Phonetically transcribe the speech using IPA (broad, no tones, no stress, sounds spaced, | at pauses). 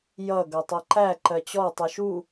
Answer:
j ʌ ɡ ʌ tˤ ʌ ǃ æ ǃ ɜ t͡ɕ ɔ tˤ u ʃ u